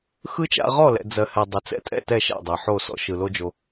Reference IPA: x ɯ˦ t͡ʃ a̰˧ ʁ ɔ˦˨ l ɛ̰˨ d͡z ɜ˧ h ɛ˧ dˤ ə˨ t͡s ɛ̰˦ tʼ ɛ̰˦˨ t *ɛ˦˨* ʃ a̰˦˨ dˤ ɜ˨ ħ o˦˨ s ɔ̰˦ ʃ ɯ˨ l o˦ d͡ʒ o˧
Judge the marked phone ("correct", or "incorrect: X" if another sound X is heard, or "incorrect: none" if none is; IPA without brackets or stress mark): correct